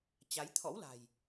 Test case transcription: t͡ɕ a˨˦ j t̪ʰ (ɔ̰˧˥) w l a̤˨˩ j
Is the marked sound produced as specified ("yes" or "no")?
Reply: yes